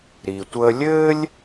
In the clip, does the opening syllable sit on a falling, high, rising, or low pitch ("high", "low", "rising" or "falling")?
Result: low